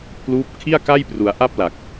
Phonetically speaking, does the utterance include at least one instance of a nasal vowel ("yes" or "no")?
no